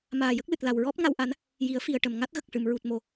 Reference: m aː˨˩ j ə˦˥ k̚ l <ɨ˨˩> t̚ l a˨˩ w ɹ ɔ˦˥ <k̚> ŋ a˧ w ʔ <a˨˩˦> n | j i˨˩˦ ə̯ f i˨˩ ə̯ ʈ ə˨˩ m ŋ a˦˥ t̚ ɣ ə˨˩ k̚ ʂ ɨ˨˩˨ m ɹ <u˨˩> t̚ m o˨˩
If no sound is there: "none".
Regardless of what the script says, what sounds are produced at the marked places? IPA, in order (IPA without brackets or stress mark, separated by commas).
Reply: ɨ˨˩, p̚, a˨˩˦, u˨˩